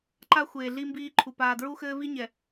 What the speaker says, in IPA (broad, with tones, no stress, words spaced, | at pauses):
ǃa˦xʷeː˨ɮi˦mbiː˦ ǃʰu˨ paː˨dɹu˦xɘː˦vi˦ ɲɛ˨